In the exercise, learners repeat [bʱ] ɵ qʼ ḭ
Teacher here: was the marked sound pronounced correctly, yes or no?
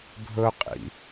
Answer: yes